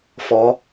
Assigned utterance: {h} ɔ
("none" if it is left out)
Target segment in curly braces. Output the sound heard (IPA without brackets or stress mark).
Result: f